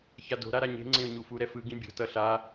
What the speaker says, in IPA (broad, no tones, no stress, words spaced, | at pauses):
çado̤ɾa ɾaɲe̤ŋ͡ǀẽʊ̯ ɲufuɾɛ fɯɡĩ bʲo̤tʌ ɬa